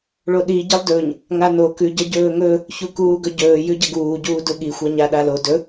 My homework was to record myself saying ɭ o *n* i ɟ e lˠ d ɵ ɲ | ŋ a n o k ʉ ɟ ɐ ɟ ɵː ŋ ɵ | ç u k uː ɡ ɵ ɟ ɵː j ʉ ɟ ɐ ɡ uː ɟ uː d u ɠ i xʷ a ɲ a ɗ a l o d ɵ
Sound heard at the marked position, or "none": ɗ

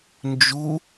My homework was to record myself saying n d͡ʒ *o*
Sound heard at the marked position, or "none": u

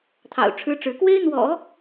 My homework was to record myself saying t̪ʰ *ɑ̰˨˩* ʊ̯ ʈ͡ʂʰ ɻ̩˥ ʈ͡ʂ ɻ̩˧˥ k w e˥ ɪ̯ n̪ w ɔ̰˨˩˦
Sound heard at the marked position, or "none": ɑ̰˨˩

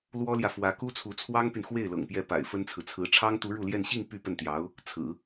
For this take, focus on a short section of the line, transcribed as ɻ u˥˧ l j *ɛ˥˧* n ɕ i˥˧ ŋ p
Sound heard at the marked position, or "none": ɛ˥˧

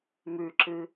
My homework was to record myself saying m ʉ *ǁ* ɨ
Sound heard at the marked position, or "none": ǁ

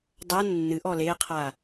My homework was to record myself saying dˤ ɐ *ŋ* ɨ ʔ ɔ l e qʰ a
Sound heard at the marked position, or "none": nː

